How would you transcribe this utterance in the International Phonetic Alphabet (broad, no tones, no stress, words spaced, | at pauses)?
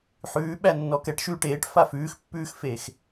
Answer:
ħʉːɓæ nːɔkɛʈ ʃʉːʈeːʈ fafʉːxpːʉːxfeːx